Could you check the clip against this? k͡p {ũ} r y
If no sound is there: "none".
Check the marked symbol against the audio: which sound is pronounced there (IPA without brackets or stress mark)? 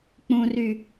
ũ